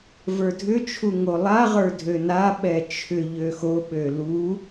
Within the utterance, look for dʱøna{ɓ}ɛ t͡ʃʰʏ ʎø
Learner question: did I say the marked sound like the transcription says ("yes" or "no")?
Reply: yes